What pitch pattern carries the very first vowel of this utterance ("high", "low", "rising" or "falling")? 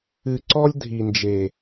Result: low